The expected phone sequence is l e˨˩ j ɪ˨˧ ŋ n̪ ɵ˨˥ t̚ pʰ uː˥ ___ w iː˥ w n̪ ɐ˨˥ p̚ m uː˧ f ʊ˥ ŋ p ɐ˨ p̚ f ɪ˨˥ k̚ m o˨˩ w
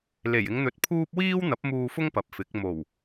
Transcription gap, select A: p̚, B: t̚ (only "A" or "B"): A